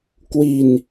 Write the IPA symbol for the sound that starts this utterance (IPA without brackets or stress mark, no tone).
k